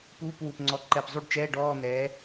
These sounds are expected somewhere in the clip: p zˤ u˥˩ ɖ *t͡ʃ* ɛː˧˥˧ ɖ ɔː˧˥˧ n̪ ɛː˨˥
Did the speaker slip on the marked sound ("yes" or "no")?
no